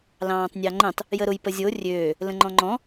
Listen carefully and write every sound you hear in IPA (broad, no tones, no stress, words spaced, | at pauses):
lɑ̃ːtˤnʲɑŋ͡ǃə̃tˤ | jəɾʊj pəzʲo rʲøː | lə̃ŋ͡ǃɔ̃ŋ͡ǃɔ̃